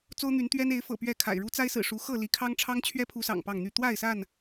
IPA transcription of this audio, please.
t͡s o˦ ʊ̯ n̪ y˨˦ n t̪ ɥ ɛ˦ n e˨˦ ɪ̯ f ɤ̰˨˩ p ɥ ɛ˥˨ kʰ a̰˨˩ ɪ̯ ɻ u˦ t͡s a˦ ɪ̯ s ɹ̩˨˩ ʂ u˨˦ x ɤ˥˨ l i˨˦ kʰ ɑ˦ ŋ ʈ͡ʂʰ ɑ˦ ŋ t͡ɕʰ ɥ ɛ˦ pʰ u˨˦ s ɑ̰˨˩ ŋ p ɑ˥˨ ŋ n̪ y˥˨ t̪ w a˥˨ ɪ̯ s a˥˨ n

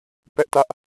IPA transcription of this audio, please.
p ɛ˦ ʔ t ä˦ ʔ

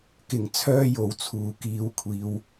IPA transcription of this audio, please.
k ɪ˨˩ ŋ t͡sʰ œː˥ j o˨˧ w t͡sʰ uː˨ k iː˨˧ w kʷʰ iː˨˧ w

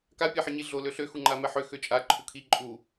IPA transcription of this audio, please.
k a pʲ ɛ ħ i ɲ i ɮ o l ø ɬ ø x u ŋ͡ǃ a m ɛ ħ ø x ø t͡ʃʼ a ǃʰ u kʰ i ǃʼ u

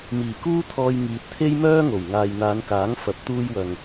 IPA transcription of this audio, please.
m iː˨˩ k uː˥ t̪ʰ ɔː˧ j ŋ iː˨ t̚ t̪ʰ e˥ j m œː˥ ŋ o˨˩ w ŋ aː˨ j n̪ aː˨˧ n k aː˨˥ ŋ f ɐ˨˥ p̚ t̪ uː˧ j w ɐ˨ ŋ

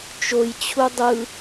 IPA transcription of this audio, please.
t͡ʃ o j t͡ɕʰ u dˤ ɯ

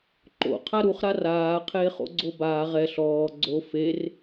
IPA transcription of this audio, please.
ǃ o̰ qʰ a ɾ u χ ɾ a r aː qʰ eː χ o̰ ɡ͡ǀ o b aː ʁ ɛ ɬ ɔː ɡ͡ǀ o f e r

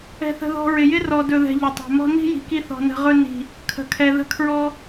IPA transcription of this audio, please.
ɛ̤˧ θ ə̤˧ ð ɔ̤˧ ɹ ɪ˨ j ɪ˦ r ɔ˨ d ɵ˨ ð ɛ̤˨ ʎ ə˨ tˤ ɛ̤˨ m ɔ̤˦ n i̤˦ j i̤˨ k i˧ θ ɔ̤˨ n ə̤˨ ʁ ɵ˧ n i̤˨ | kʰ ə̤˨ kʰ ɛ˨ ð ə̤˦ kʰ ɹ ɔ˦

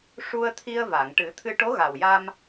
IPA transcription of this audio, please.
ʂ u˧ ə̯ t̪ʰ i˧ ə̯ v a˨˩˨ ŋ ʈ ɨ˨˩˦ t̪ʰ ɨ˧ ʈ o˧˥ ɣ a˨˩ w j a˧ m

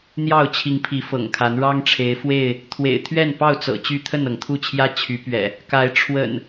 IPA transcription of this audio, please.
n̪ j ɑ˥˨ ʊ̯ t͡ɕʰ i˨˦ ŋ pʰ i˨˦ f ɤ̰˨˩ ŋ kʰ a˨˦ n ɻ ɑ˦ ŋ ʈ͡ʂʰ e˨˦ ɪ̯ f w e˥˨ ɪ̯ | t̪ʰ w ḛ˨˩ ɪ̯ t̪ʰ ɥ ɛ˥˨ n p ɑ˥˨ ʊ̯ t͡s ɤ̰˨˩ t͡ɕ y˥˨ t̪ʰ ə˥˨ n ɤ˩ ŋ t̪ʰ u˥˨ t͡ɕʰ j ä˦ t͡ɕʰ y˨˦ p ɥ ɛ̰˨˩ | k a˨˦ ɪ̯ ʈ͡ʂʰ w ə̰˨˩ n

